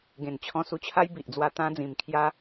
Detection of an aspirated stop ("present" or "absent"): present